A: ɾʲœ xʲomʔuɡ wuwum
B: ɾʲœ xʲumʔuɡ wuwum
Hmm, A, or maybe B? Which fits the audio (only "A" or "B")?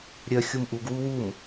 B